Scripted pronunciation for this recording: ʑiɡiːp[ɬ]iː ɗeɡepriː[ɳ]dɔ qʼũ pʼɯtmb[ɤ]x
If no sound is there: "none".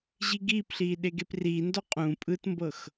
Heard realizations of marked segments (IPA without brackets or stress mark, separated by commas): ɬ, n, ɤ